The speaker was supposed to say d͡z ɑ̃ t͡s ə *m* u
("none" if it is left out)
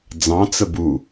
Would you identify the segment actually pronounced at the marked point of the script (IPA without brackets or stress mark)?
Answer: b